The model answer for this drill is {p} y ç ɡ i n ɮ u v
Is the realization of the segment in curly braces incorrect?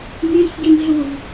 yes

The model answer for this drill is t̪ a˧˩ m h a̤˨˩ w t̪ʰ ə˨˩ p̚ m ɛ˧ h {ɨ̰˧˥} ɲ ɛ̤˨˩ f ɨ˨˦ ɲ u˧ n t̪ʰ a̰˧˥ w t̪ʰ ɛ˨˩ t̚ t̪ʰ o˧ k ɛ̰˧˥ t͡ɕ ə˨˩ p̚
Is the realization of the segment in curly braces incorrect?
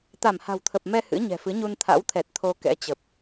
no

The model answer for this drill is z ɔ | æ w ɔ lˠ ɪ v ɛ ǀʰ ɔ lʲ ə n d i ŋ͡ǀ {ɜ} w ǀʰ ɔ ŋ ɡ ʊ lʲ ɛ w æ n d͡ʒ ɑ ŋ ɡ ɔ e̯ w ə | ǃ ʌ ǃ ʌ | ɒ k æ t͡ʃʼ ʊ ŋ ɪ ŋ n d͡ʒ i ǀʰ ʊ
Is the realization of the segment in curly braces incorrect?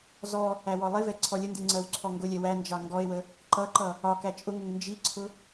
no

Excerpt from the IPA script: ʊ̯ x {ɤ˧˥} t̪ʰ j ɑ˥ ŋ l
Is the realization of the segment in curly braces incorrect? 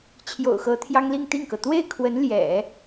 no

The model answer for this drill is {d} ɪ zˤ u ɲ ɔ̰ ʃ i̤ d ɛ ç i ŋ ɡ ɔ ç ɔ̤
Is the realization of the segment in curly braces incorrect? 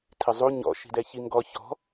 yes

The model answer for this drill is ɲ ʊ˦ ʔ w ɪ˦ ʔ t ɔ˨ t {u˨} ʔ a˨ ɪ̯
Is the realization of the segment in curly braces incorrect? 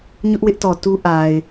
yes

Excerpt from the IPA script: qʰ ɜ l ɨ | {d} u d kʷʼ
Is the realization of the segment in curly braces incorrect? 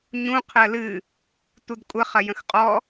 yes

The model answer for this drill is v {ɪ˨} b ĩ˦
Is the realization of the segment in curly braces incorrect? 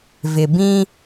no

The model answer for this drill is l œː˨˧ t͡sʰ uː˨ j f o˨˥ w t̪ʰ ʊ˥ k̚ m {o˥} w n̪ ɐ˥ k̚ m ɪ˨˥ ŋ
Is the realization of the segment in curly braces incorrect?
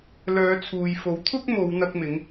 yes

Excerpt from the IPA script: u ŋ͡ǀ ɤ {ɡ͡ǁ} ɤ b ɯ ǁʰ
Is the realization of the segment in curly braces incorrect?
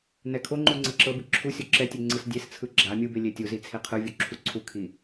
yes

